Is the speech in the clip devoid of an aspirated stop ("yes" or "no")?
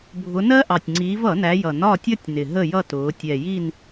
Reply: yes